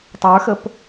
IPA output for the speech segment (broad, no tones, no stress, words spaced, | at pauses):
tˤə˞xəp